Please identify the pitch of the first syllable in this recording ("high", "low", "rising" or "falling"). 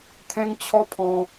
high